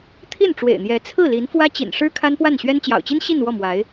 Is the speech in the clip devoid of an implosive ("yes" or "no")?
yes